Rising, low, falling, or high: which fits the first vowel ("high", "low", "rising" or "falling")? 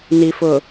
low